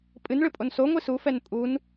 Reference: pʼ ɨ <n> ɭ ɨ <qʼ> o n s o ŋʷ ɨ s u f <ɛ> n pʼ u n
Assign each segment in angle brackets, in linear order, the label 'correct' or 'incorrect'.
correct, incorrect: pʼ, correct

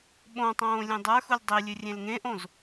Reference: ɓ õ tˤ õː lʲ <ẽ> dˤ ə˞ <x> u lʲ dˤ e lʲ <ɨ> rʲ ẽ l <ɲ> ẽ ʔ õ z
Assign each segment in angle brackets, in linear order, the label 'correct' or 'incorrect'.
correct, correct, correct, incorrect: ŋ

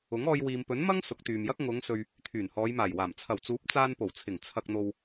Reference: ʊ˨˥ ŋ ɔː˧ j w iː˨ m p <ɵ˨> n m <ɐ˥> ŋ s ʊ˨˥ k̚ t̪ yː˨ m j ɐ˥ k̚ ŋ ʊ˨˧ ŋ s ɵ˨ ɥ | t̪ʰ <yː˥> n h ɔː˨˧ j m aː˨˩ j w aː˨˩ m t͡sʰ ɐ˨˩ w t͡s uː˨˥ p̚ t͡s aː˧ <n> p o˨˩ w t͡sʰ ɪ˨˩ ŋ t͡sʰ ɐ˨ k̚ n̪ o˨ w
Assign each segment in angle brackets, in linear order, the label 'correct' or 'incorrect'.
incorrect: ɵ˨˥, correct, incorrect: yː˨˩, correct

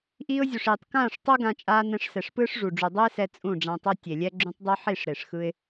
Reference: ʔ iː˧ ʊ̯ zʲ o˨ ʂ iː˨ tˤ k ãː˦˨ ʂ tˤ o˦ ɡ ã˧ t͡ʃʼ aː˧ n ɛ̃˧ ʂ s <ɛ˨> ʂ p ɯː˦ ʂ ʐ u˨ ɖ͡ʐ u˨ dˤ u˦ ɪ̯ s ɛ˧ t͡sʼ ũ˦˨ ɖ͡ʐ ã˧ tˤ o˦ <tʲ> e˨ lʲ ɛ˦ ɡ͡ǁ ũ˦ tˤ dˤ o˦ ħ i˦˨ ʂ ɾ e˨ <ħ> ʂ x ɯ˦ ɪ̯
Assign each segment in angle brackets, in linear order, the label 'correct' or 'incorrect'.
correct, correct, incorrect: none

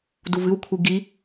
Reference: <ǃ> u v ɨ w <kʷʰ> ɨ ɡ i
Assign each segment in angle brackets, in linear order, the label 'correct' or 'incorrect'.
incorrect: d, correct

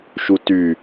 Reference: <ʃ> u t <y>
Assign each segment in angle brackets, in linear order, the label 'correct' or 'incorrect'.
correct, correct

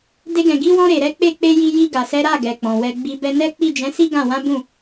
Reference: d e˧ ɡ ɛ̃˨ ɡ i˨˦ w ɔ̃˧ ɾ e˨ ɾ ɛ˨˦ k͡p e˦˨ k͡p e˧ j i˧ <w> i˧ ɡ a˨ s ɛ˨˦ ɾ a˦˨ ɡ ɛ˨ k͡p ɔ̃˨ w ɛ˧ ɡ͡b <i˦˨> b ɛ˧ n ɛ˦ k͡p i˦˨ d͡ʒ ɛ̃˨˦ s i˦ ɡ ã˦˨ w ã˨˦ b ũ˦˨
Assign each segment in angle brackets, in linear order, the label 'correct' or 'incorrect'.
incorrect: j, incorrect: i˧

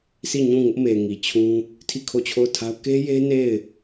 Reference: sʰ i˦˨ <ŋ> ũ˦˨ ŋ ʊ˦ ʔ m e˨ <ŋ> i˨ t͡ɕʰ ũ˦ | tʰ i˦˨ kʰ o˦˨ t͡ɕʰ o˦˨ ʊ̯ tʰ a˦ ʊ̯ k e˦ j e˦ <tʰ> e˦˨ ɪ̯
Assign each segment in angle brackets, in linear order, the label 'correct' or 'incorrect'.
incorrect: ɲ, correct, incorrect: n

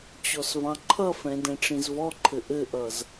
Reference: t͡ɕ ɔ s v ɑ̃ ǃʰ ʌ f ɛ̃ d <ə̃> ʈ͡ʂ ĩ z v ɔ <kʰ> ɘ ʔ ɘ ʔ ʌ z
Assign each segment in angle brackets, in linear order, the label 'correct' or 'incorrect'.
incorrect: ɛ̃, incorrect: ǃʰ

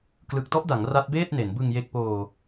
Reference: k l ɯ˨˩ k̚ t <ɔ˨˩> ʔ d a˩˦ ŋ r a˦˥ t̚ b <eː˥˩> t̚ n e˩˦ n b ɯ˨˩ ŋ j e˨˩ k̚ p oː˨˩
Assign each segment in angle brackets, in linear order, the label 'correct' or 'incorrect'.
incorrect: ɔ˦˥, correct

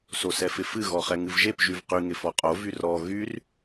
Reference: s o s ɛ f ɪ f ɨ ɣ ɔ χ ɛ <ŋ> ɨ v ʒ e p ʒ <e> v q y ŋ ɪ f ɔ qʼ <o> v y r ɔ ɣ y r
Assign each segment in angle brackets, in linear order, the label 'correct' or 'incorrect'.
correct, incorrect: y, correct

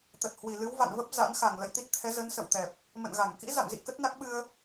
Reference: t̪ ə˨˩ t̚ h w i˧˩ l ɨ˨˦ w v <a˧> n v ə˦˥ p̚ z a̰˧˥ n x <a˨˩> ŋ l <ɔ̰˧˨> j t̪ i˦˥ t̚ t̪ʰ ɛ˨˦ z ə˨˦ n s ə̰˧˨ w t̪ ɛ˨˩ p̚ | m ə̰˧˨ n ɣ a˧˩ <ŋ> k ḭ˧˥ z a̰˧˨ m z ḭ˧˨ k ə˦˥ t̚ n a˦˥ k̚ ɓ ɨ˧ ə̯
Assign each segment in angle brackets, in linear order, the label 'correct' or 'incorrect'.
incorrect: a̰˧˨, incorrect: a˧˩, incorrect: ə̰˧˨, correct

